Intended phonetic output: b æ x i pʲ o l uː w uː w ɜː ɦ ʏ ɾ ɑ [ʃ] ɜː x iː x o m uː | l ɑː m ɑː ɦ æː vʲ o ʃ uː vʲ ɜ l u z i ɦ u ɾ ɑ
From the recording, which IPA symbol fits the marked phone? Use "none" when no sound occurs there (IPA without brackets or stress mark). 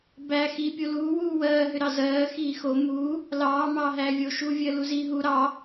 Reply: z